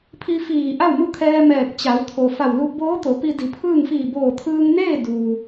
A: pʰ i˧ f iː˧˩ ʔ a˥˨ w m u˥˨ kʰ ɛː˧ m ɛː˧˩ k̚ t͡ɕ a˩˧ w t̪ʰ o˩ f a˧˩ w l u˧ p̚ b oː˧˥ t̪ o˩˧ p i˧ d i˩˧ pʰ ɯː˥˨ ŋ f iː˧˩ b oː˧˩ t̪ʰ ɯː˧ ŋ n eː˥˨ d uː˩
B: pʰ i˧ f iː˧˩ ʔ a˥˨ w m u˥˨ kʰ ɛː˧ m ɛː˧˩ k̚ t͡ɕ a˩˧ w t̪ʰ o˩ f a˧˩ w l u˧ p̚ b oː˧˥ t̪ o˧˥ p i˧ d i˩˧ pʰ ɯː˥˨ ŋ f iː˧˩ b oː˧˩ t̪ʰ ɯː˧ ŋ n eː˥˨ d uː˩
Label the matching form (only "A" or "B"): A